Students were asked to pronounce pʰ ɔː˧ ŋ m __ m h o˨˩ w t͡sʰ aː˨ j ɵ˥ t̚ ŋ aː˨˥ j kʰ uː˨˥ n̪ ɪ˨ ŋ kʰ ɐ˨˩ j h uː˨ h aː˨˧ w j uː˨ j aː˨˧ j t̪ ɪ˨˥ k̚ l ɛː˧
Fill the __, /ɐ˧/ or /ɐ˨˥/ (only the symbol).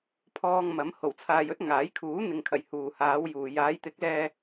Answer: ɐ˨˥